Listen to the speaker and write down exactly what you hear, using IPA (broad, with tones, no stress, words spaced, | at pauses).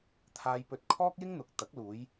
t̪ʰaː˧jpɵ˧t̚ kʰɔː˥k̚jɪ˥ŋn̪ʊ˨˥k̚ t̪ɐ˨˥k̚luː˨˧j